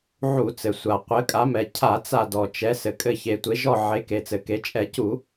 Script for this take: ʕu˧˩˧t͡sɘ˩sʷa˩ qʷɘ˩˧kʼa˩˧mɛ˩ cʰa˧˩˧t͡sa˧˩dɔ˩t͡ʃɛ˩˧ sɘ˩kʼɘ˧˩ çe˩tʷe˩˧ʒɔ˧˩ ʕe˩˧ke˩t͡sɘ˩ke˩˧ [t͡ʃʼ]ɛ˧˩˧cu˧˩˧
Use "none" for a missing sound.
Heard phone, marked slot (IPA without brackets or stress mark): t͡ʃʼ